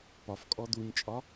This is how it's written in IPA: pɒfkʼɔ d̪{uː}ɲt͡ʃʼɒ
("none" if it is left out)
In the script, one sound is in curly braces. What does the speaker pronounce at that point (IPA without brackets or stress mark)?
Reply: u